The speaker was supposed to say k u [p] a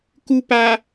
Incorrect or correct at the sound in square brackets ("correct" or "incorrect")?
correct